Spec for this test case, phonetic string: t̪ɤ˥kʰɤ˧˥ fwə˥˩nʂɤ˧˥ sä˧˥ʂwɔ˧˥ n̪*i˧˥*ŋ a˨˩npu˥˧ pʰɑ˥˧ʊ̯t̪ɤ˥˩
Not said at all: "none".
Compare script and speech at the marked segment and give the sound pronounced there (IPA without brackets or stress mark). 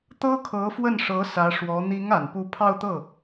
i˧˥